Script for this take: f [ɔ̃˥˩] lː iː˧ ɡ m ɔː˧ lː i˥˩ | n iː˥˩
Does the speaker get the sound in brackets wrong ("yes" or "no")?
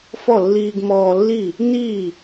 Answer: yes